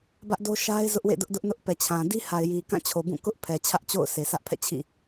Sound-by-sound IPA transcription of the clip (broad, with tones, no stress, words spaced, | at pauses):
bä˦ʔdo˦ ʃa˦ɪ̯ zʊ˦ʔwḛ˦˨dʊ˦ʔdʊ˦ʔ nʊ˦ʔ pɛ˨t͡ɕʰã˨ di˦ha˨ɪ̯ji˨ kã˦˨t͡ɕʰo˨bũ˦˨ kʊ˦ʔ pʰɛ˨t͡ɕʰä˦ʔt͡ɕo̰˦˨ʊ̯ sʰe˨sä˦ʔpʰɛ̰˦˨ t͡ɕʰḭ˦˨